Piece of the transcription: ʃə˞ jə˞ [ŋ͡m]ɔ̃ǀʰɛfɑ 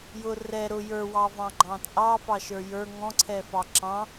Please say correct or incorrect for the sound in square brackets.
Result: incorrect: ŋ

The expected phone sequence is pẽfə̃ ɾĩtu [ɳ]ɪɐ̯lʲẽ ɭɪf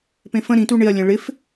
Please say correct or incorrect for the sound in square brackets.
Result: correct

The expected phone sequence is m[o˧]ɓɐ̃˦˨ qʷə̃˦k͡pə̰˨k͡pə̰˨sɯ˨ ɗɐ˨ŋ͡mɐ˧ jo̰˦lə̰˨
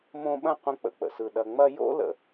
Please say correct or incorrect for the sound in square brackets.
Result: incorrect: õ˧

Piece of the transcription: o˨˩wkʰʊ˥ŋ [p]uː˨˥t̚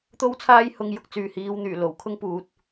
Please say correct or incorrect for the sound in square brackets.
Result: correct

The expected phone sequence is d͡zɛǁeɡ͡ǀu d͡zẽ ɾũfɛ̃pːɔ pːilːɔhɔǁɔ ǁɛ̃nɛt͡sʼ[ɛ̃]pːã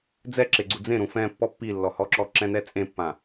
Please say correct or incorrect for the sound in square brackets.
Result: incorrect: ẽ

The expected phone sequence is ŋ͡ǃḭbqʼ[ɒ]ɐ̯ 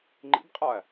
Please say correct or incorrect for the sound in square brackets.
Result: correct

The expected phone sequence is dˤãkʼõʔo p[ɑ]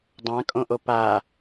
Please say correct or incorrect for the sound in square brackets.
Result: incorrect: a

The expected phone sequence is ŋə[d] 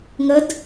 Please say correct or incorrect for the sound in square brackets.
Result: correct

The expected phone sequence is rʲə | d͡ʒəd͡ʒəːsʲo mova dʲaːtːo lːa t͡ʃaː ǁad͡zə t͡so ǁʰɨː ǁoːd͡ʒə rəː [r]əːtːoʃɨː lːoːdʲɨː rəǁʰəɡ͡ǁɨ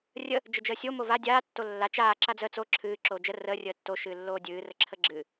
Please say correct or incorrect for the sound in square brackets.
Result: incorrect: rʲ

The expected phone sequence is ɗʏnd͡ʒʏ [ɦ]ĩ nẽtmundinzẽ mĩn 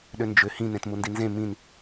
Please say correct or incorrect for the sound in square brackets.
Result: incorrect: h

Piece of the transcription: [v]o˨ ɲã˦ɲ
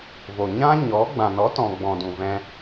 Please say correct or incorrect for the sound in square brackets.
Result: correct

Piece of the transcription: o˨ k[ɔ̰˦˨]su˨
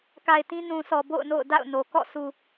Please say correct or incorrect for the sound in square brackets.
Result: correct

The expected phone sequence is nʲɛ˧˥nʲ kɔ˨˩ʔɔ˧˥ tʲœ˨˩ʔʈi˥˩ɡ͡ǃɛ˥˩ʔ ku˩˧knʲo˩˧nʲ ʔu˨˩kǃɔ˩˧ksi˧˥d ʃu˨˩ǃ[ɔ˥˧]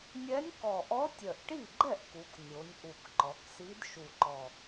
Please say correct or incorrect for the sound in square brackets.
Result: incorrect: ɔ˨˩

